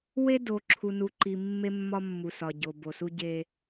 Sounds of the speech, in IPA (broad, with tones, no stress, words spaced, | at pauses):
we˦do˨ ǁʰu˨nu˨ǃi˨ mːe˦mːɒ˦mːu˨sɒ˨ ɟo˨bo˨su˦ ɟe˦